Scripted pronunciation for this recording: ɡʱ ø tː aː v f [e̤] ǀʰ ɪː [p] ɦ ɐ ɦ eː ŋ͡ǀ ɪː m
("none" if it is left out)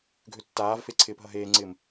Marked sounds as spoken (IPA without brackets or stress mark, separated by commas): e, p